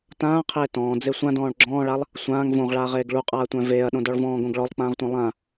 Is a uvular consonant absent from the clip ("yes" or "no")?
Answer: no